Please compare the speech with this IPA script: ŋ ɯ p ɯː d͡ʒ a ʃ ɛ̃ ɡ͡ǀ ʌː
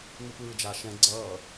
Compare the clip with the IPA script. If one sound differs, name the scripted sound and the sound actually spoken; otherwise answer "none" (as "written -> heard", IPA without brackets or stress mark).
none